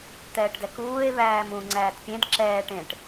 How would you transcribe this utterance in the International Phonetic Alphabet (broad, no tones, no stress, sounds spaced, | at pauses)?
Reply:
t̪ ɛː ʈ d ɛ k uː e̯ β æː m ũ ŋ͡ǀ æː t pʲ ẽ d ǁ ɛː ʈ ẽ ʈ